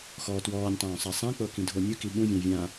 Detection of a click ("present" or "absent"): absent